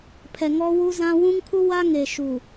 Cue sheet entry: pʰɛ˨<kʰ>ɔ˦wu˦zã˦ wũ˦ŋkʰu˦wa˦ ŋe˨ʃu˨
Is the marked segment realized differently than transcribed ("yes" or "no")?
yes